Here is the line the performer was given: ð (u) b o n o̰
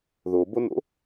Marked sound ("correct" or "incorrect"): incorrect